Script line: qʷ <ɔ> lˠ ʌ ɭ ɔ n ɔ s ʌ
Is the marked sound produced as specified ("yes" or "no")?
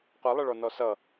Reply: no